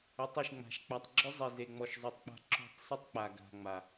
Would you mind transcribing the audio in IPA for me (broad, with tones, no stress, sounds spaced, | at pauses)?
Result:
ʏ˨˦ tˤ ɯ˨ ʃ ŋ͡m a̤˨ ʃ k͡p a˨ tˤ ɡ͡ǁ ʏ˦ zˤ i˨ z e˨ ŋ͡m ɔ˨ ʃ zˤ ɯ˨ tˤ k͡p a̤˦ ǁ o̤˦˨ tˤ sˤ ə˦ tˤ k͡p a˨ ɡ a̤˨ ŋ͡m a˨